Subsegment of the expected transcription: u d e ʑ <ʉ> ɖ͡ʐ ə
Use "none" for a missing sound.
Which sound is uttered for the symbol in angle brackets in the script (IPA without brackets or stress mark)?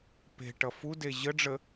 ə